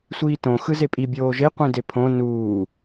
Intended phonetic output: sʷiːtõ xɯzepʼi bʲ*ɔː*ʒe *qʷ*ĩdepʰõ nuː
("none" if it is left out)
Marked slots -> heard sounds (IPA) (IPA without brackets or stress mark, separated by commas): oː, qʷ